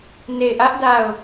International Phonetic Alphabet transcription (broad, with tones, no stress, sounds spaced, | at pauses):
n e˦˨ ɪ̯ ʔ ä˦ ʔ d a˦˨ ʊ̯